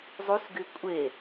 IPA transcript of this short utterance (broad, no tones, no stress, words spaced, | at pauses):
zˤusɡy kʷʼe